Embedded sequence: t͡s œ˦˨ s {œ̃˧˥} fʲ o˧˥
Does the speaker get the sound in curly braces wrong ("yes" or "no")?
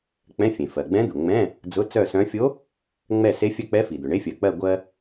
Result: no